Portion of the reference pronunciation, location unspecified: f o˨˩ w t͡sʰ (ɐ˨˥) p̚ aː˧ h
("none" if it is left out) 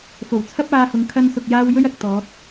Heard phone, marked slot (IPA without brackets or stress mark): ɐ˥